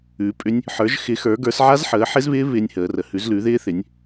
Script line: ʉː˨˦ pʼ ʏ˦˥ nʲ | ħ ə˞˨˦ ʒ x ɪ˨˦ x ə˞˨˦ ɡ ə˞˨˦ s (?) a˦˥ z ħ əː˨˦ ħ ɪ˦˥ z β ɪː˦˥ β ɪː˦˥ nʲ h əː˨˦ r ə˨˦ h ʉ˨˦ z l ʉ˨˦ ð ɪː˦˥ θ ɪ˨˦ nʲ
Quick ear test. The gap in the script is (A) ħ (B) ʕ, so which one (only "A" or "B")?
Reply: B